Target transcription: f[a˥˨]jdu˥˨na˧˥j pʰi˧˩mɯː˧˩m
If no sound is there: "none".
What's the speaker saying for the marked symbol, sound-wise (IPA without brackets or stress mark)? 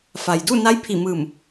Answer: a˩